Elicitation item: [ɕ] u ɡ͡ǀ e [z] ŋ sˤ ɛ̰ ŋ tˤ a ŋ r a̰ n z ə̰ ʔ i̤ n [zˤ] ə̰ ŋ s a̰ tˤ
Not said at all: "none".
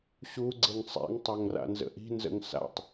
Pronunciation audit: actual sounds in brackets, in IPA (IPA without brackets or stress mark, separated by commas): ɕ, none, z